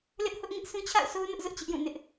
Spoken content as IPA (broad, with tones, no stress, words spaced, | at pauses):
lɪ˦ʔhʊ˦ʔŋɪ˦ʔ sũ˦t͡ɕʰa̰˦˨ʊ̯so˦ʊ̯nʊ˦ʔ zʊ˦ʔt͡ɕɪ˦ʔjũ˦˨nɪ˦ʔ